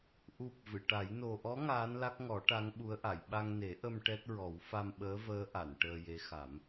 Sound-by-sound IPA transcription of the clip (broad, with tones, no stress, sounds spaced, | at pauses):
ʔ u˨˩ p̚ v ɨ˨˩˨ ʈ a˨˩˦ j n o˨˩ ʔ ɔ˧˥ ŋ aː˧˥ n l a˦˥ k̚ ŋ ɔ˨˩˦ ʈ a˧˥ ŋ ɓ u˧˥ ə̯ ʔ a˨˩˨ j ɓ a˧ ŋ n e˨˩˦ ʔ ə˧ m ʈ ɛ˦˥ t̚ ɹ ɔ˨˩˦ w f a˧ m ɓ əː˧˥ v əː˧˥ ʔ a˨˩˨ n ʈ əː˧ j e˧˥ x a˨˩˦ m